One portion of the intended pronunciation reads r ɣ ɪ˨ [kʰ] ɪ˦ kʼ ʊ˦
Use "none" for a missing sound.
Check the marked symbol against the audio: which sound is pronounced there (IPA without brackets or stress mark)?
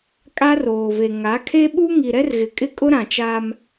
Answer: kʼ